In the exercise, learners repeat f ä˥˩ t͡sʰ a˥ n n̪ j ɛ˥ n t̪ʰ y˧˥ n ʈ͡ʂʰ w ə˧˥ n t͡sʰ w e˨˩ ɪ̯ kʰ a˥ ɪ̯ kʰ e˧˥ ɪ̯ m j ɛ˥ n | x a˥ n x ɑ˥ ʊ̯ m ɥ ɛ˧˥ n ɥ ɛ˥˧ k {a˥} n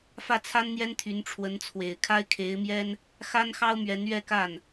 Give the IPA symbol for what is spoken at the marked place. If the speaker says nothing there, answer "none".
a˥˩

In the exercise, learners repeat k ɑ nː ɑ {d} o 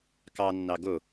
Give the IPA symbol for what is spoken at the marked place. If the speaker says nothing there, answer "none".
ɡ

